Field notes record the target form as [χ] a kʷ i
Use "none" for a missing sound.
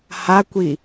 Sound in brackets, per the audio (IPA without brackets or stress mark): h